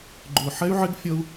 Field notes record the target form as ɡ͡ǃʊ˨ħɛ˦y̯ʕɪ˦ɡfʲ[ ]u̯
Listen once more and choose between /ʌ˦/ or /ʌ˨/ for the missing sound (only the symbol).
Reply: ʌ˦